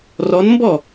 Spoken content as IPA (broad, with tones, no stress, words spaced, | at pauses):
rɔ˧˥nmbɔ˥˨